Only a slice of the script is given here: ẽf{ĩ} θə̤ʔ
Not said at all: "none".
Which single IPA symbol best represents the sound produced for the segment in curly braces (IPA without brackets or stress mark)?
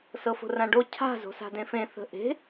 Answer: ẽ